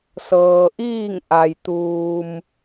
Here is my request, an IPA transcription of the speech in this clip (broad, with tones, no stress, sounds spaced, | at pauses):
s ɤː˩ ʔ iː˥˨ ŋ ʔ a˩ j t̪ uː˩ m